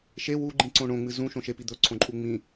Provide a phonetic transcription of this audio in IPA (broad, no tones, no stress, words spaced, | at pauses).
ʃe wuɡ͡ǃĩǀõ ɳõŋ͡mɨ zũʃõ ʃepi d̪ɵǀʰõǃʼu ŋ͡mĩ